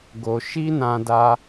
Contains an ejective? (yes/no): no